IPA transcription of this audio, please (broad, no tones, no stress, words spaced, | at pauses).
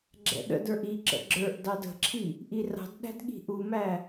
ɡ͡ǁɛ̰ɗə̰də˞ʔ i ǁə̰ɡ͡ǁə˞ʔdɑd ə̤ǁʰi | ʔirɑ̤dɗæ̤d ɠi̤ʔumæ